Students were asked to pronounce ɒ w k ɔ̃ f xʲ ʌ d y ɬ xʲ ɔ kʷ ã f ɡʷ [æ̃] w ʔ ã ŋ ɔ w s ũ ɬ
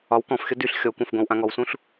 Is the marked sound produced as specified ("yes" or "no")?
no